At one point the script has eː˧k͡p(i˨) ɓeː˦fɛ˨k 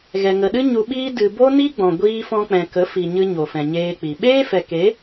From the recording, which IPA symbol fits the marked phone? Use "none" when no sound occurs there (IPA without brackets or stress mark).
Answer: i˨